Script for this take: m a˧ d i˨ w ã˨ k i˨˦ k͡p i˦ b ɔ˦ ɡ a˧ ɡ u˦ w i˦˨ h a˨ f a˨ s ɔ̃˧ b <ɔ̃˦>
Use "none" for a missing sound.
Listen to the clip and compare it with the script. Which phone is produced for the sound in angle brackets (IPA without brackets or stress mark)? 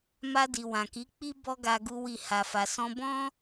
ɔ̃˦